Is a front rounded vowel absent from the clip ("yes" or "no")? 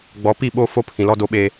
yes